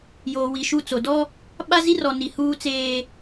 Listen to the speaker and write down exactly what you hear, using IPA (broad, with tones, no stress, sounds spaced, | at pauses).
j oː˨ w i˨ ʃ u˦˨ t͡s o˨ d ɔ˦ | ɓ a˦ z i˦ r ɔ˨ n i˨ h uː˦ t͡s eː˦